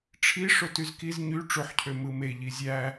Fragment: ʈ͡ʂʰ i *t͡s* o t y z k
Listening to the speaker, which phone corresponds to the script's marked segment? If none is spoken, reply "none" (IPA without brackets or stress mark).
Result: ʂ